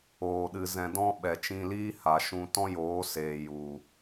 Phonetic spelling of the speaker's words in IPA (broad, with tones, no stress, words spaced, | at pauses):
oː˧ɗɨ˧zɛ̃˧ dɔ̃˦ ɓɛ˨t͡ʃĩ˧liː˦ ha˨ʃũ˧ tɔ̃˦joː˨˦seː˨ ju˨